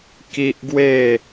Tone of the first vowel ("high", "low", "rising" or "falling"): high